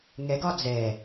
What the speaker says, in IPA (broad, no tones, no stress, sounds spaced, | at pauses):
ŋ ɛ ɡ ɒ d͡z ɛ